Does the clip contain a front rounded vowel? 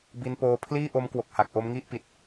no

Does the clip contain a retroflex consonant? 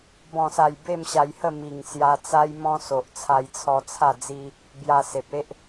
no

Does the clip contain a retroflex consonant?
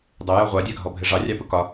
yes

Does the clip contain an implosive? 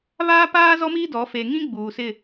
no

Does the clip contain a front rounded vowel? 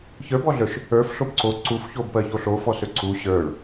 yes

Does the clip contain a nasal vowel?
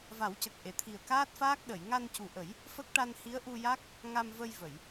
no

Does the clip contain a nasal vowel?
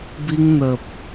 no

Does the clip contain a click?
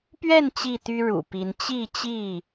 no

